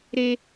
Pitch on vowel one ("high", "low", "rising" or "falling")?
high